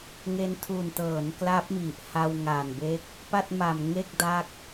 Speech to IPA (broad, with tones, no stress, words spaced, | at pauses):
ŋe˧ntʰu˨˩ntɤː˩˦n kla˦˥p̚mi˨˩ʔ ha˧wŋa˨˩nbe˦˥k̚ | pa˥˩t̚ma˨˩mŋe˥˩k̚ da˦˥k̚